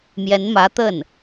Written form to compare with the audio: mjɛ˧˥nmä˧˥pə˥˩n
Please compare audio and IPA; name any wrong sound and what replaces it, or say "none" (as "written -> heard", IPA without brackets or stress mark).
p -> t̪